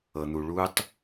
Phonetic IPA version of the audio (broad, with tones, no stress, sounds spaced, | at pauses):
ɤ˨ n̪ u˨ ɭ u˦ tˤ